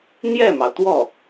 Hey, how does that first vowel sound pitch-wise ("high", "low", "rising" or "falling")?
falling